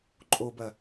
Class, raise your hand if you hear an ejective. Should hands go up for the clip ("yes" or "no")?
yes